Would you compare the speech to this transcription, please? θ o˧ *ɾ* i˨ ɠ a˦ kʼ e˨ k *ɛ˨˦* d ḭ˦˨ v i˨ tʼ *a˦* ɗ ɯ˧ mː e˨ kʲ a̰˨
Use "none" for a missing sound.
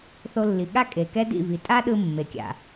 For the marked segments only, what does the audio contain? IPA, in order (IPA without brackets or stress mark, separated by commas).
lː, ɛ˦, a˦